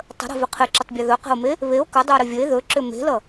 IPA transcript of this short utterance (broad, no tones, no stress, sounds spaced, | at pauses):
tˤ ə̤ ɾ e̤ v ʏ qʰ ɪ ǁ ʏ tˤ bʲ ʌ ð ɵ q e̤ o̯ m e | β e o̯ k ʌ dˤ ʏ o̯ ɾ ʏ vʲ ə e̯ ð ɵ ǁ ʏ m e̤ l ʌ